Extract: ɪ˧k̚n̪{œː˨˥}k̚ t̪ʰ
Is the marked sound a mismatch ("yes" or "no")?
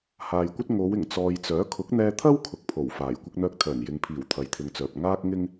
yes